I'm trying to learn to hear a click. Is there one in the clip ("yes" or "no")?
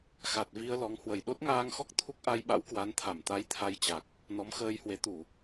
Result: no